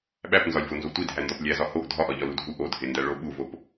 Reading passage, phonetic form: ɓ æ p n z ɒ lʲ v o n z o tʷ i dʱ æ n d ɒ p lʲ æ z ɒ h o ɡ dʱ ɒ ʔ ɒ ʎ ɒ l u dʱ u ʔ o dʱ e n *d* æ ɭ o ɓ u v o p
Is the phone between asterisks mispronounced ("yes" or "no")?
no